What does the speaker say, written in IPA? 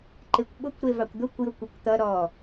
ǃekʷɓʊkʷ ɾevɑkʷd̪ʊkʷ jʊkʷɛkʷt̪ʌ ɾɔ

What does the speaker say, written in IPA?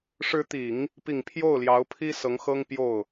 ʂɻ̩˧˥t̪i˨˩˦ŋ | pi˨˩ŋ pʰjo˥˩ʊ̯ljɑ˧˥ʊ̯pʰi˥ sɤ˧˥ŋxɤ˥ŋpjo˥˩ʊ̯

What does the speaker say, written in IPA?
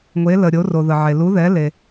ŋʷe˩˧lə˩ɾʲo˩˧ ro˩ðə˩ʕe˩ lu˩˧ðɛ˩˧le˩

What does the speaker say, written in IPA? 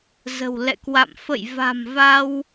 zə̤˨˩wlɛ̰˧˨kwa̰˧˨m fə̰˧˨jva̤˨˩mva˧w

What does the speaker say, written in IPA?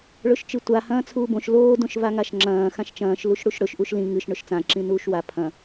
ɭɵʃt͡ʃɨtʷa hɐ̃ːt͡sʰuːbõʃ loː dõʃvaŋaʃŋ͡ǁɐ̃ː xãʃt͡ʃɐ̃ːʃ luʃɽuʃɽɵʃ ʔuʃlĩ ŋɨʃ ɳɵʃt͡sã ǁĩnuːʃwa pʰɐ̃

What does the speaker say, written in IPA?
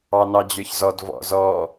ɑnɑd͡ʑə˞çzɔd vɔ̰zɔ

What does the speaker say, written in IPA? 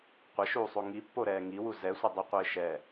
qʷɪʃuːsˤo ŋipːoɾɛː ŋiwu zɛsʷɪ dˤiqʷɪːʃɛ

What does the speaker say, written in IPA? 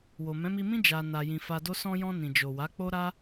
wo˨mɛ̃˨˦mi˧mĩ˦ d͡ʒa˧na˧ jĩ˧fa˧do˦ sɔ̃˧jɔ̃˧nĩ˨d͡ʒo˨ wa˨˦k͡po˦ɾa˦

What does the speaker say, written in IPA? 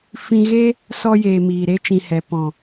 fĩ˧ɣe˦ | sɔ˧jeː˨ miː˨ɾe˧t͡ʃĩ˨ hɛ˨ pɔ̃˨

